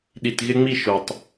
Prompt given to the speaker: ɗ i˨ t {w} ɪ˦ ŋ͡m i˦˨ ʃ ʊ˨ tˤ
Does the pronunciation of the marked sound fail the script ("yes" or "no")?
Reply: yes